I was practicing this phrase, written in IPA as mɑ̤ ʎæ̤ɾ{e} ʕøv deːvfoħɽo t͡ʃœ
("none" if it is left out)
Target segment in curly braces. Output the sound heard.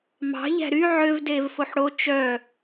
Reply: y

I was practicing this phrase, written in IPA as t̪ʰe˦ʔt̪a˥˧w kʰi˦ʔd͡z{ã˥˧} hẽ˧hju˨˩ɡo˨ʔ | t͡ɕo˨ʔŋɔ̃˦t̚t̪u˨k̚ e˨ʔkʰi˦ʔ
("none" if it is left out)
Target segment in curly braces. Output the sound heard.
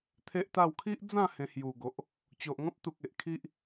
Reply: ã˥˧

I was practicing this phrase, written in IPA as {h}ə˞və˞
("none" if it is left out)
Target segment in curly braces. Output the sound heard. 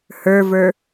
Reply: h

